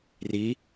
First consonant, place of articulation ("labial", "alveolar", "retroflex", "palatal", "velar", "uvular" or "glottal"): alveolar